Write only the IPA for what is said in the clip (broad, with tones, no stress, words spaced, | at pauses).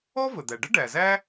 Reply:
ɔ˥ və˩d̪æ˩ɖə˥ ɖæ˩zæ˥